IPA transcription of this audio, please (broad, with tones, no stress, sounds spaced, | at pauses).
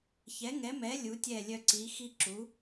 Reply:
ç ɛ˨˥ ŋ ɛ˨˥ m ɛ˨˥ lʲ u˨˥ tʲ ɛ˥˨ lʲ œ˦ ǀ i˨˥ x i˦ ǁ u˨˥